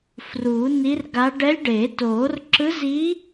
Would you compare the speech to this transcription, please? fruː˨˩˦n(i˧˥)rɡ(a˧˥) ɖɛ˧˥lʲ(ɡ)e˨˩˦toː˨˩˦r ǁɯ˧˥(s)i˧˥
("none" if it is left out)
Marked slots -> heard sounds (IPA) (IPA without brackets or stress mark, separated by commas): i˧˥, a˧˥, ɖ, z